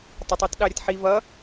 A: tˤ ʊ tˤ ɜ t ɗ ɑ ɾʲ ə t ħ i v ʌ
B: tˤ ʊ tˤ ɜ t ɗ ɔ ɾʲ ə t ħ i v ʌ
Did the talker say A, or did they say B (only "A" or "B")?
A